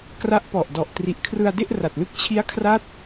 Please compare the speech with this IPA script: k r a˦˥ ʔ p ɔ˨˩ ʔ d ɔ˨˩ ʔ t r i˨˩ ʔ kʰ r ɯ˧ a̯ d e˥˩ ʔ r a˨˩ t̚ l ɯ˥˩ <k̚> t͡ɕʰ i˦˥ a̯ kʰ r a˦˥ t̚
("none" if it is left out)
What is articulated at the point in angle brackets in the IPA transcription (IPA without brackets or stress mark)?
k̚